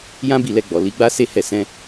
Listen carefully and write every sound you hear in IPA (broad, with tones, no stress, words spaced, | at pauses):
jã˦bi˦˨lɛ˧ɡ͡bɔ˨ li˨˦ɡ͡ba˦ se˦hɛ˦˨ sɛ̃˧